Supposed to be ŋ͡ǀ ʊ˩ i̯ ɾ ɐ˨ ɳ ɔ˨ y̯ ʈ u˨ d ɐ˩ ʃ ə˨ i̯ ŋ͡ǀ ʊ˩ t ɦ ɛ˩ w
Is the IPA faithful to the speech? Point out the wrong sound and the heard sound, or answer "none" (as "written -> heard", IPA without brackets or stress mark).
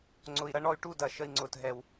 none